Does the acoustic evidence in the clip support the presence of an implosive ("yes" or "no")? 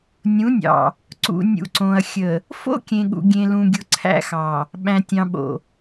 yes